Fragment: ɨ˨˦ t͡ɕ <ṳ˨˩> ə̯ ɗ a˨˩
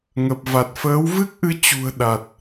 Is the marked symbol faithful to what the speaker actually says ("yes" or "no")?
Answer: yes